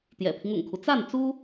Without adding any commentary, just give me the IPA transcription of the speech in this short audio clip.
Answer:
t̪ j ɛ̰˨˩ pʰ i˦ ŋ ʊ̰˨˩ ŋ kʰ u˦ t͡s a˥˩ n t͡s u˥

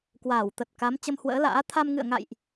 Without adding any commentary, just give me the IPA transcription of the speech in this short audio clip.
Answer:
k w aː˧˩ w t̪ ə˨˩ t̚ k a˨˦ m t͡ɕ ə˧ m h w ə̰ː˧˥ l a̰ː˧˥ t̪ʰ a˧ m ŋ ɨ̰˧˨ ə̯ ŋ a̰˧˨ j ʔ

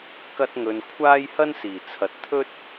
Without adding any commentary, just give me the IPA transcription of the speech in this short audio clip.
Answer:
k ɐ˧ t̚ ŋ ɵ˨ n kʷʰ aː˥ j h ɐ˥ n s iː˨˩ t͡sʰ ɐ˨ t̚ t̪ʰ ɵ˥ t̚

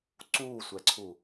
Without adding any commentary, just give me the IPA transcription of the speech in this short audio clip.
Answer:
ǀ uː sʷ ɛ ǀʰ u

